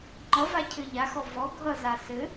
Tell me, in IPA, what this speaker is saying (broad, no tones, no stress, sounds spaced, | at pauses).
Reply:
ŋ͡ǃ ʌ v a cʰ ɘ ʎ a x ɔ v ɔ ɡʱ ʌ z a s ɘ